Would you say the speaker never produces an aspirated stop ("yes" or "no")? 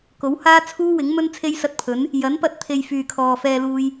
no